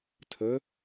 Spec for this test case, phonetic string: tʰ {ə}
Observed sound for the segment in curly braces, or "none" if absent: ə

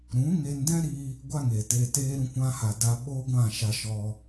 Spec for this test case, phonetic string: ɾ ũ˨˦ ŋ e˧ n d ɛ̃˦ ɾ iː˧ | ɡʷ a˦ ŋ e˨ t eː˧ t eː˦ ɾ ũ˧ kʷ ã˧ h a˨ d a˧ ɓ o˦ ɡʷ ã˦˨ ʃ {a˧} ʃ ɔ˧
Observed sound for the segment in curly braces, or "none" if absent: a˧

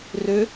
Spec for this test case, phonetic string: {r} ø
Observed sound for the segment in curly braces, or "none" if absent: r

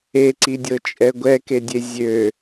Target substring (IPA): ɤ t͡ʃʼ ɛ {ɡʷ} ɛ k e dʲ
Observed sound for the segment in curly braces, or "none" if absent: ɡʷ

